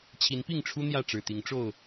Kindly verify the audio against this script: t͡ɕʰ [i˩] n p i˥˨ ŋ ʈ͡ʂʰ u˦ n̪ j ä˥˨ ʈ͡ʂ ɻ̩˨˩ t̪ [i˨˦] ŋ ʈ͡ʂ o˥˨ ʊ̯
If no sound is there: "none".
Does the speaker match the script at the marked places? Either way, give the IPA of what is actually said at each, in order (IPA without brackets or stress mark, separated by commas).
i˨˦, i˨˦